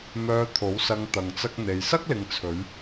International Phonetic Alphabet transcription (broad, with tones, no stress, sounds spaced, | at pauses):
m œː˧ t̪ʰ o˨˥ w s ɐ˧ ŋ t̪ ɐ˧ ŋ t͡s ɐ˥ k̚ n̪ e˧ j s ɐ˥ k̚ l ɪ˨ ŋ t͡sʰ ɵ˨˧ ɥ